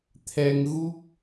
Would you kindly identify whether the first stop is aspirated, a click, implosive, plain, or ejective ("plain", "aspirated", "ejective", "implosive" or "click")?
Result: aspirated